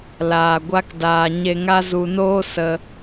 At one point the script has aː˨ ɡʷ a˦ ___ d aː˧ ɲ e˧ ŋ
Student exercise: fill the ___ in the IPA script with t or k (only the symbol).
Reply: k